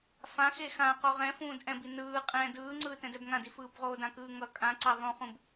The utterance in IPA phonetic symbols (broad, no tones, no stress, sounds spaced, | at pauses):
f ã x e x ã q o ʁ ɛ̃ f ũː d ʔ ɛ̃ b i n ɯː qʼ ɛ̃ d ɯː ŋ͡ǀ ɯː t ɛ̃ d ɛ b ŋ ã d i f ɯː b ʁ oː d ã k ɯː ŋ ʌ kʼ ã ǀ a ðˤ ũ χ ũ b